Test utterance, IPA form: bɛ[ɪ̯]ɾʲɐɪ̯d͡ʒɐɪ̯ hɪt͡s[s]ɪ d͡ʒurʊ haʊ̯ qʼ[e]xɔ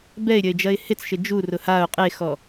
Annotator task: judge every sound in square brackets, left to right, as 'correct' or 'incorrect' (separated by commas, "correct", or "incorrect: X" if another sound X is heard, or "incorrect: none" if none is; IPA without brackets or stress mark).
correct, incorrect: ʃ, correct